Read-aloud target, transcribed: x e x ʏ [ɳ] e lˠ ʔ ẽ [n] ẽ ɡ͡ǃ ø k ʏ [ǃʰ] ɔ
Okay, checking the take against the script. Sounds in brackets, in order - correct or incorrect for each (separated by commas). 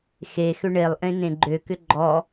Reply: correct, correct, incorrect